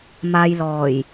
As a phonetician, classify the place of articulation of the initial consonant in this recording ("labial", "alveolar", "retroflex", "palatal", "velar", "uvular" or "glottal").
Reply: labial